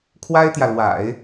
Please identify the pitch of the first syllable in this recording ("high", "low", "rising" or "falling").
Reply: high